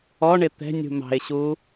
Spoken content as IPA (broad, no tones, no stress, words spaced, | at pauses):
ɔɳɪ t̪ɛ̤nʲṳ mɑ̤ɪ̯ɕu